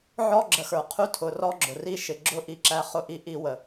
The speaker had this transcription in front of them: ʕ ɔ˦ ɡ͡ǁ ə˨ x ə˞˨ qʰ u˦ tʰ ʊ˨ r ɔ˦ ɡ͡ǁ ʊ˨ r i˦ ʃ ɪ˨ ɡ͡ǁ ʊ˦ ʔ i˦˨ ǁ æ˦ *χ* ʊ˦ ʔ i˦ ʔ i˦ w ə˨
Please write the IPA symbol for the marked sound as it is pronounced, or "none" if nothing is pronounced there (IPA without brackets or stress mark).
χ